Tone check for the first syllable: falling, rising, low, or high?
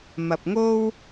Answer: low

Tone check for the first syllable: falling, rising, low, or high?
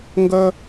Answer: high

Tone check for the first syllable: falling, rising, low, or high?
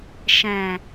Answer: low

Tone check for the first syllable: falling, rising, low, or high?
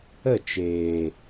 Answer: falling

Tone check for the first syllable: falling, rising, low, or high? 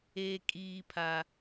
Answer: high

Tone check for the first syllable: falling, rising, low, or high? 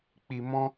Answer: low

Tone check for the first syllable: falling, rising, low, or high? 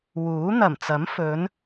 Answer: rising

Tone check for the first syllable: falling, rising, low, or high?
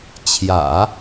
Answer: low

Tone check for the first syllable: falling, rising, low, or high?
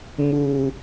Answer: high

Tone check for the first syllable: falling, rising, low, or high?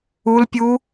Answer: high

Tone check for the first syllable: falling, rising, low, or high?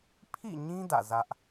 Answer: falling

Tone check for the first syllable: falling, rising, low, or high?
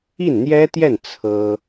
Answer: falling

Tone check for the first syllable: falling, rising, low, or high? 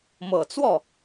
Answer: low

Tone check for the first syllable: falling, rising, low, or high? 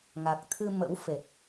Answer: low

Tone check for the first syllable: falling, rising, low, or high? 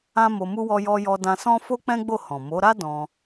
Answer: high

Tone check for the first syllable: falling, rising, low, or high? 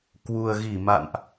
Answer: low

